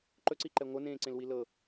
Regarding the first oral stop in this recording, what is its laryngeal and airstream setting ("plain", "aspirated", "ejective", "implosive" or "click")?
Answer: click